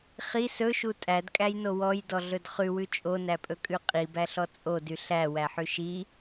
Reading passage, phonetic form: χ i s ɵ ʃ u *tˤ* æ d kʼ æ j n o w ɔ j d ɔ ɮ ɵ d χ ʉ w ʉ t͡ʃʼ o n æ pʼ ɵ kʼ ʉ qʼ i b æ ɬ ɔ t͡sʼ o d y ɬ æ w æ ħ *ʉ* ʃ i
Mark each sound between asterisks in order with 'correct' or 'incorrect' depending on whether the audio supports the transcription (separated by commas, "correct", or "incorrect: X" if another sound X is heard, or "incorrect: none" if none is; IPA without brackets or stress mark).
incorrect: tʼ, correct